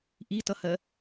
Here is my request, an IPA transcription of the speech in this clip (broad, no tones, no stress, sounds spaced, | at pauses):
ʔ i t ʌ h ɜ